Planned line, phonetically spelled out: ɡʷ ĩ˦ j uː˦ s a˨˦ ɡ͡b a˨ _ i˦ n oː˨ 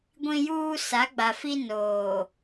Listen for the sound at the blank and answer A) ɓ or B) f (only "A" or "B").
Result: B